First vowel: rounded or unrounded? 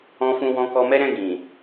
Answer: rounded